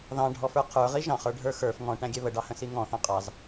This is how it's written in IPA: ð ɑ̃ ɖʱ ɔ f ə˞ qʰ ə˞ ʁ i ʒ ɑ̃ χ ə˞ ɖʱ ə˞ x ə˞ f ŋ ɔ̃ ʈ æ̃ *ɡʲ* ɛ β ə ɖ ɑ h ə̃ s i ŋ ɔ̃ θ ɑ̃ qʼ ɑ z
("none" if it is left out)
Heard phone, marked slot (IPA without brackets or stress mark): ɡʲ